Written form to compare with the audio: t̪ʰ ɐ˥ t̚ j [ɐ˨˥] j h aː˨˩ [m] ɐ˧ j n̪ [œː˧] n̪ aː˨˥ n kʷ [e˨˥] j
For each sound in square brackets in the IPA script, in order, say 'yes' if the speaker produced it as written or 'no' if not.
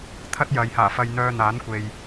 no, no, yes, no

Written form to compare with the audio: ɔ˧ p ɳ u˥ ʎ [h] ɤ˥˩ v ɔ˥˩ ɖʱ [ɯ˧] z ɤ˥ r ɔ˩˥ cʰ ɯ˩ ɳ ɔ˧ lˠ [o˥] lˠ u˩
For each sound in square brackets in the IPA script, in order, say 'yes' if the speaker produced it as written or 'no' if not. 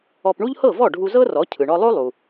yes, no, yes

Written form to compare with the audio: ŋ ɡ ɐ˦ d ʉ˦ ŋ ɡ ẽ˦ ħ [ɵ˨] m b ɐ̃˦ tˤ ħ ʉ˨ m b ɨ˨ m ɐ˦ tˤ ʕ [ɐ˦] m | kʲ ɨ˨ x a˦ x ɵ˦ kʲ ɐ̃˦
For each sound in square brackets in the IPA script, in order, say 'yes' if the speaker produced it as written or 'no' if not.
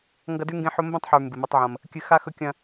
no, no

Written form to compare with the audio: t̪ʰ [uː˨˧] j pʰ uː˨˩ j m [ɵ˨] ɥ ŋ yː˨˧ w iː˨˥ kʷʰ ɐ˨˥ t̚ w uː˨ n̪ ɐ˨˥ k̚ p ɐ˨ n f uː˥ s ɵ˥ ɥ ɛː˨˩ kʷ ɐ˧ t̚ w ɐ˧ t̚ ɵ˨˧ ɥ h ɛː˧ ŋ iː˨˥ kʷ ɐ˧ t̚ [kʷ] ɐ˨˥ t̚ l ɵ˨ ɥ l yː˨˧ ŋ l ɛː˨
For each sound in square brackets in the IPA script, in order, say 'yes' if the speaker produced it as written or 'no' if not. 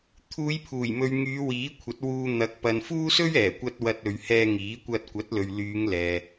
yes, yes, yes

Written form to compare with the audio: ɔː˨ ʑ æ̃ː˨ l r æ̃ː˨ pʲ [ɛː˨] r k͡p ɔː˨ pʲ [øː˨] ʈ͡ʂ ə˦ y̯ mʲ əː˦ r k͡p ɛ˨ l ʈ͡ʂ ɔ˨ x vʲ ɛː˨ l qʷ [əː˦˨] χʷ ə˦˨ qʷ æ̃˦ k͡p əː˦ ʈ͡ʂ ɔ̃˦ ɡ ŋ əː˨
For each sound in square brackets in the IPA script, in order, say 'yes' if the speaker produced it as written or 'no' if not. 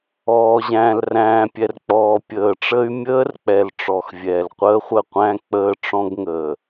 no, no, no

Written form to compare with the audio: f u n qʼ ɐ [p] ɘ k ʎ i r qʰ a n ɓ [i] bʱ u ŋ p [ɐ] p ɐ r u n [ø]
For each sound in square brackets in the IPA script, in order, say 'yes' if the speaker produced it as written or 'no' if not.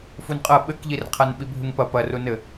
no, yes, yes, no

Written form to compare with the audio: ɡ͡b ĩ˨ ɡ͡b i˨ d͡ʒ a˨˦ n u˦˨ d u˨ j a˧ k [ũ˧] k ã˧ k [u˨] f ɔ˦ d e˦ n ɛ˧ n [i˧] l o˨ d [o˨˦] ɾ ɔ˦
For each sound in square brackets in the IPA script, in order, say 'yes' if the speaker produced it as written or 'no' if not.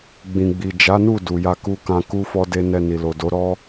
no, no, no, yes

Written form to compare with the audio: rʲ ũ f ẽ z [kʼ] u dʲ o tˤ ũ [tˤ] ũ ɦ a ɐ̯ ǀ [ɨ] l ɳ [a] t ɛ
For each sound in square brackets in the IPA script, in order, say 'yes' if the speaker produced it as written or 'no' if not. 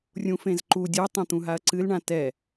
no, no, yes, no

